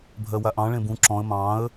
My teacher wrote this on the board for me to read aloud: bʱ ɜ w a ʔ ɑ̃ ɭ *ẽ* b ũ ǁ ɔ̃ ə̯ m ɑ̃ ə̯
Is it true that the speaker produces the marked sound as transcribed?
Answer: yes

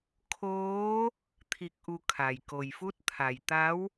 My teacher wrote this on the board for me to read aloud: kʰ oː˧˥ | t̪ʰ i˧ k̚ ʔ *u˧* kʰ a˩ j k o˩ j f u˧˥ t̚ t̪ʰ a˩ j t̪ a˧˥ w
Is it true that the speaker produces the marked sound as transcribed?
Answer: yes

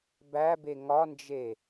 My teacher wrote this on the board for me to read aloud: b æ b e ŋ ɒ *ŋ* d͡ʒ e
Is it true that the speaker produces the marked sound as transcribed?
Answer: no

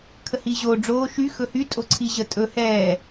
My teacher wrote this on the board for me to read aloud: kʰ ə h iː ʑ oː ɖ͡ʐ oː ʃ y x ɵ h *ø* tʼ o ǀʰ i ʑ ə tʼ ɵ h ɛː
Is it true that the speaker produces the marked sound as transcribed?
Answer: no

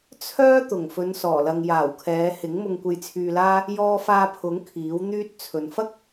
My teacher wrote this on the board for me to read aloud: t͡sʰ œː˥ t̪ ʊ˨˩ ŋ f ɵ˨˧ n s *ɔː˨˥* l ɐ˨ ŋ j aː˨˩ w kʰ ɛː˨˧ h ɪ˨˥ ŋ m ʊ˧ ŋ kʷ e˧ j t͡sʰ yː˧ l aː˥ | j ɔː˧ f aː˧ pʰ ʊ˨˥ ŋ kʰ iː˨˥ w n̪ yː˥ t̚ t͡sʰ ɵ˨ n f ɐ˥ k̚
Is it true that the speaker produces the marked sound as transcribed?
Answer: no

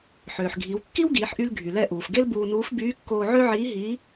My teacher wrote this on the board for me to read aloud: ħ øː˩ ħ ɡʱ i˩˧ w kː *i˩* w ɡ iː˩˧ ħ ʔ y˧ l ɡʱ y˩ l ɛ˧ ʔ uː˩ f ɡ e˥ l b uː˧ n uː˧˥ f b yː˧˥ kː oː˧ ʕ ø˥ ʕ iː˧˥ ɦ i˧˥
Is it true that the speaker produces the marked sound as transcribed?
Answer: no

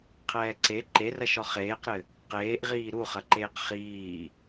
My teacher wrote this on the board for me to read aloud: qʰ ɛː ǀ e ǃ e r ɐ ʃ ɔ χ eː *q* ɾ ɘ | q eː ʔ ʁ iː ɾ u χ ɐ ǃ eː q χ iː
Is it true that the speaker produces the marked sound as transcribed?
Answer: yes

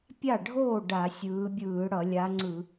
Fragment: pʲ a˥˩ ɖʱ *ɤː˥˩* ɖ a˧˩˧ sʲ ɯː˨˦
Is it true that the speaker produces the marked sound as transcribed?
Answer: no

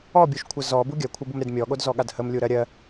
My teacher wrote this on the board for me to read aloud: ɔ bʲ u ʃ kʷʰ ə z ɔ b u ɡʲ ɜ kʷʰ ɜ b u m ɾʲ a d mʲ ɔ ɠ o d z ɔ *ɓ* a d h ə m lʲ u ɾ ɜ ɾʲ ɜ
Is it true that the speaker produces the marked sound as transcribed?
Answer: no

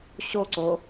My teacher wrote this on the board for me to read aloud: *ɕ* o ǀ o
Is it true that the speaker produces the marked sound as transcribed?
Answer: yes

